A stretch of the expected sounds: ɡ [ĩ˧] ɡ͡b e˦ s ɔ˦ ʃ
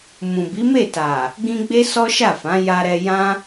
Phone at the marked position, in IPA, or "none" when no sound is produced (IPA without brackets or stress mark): ĩ˧